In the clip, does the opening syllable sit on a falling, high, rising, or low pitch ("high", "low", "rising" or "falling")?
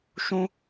high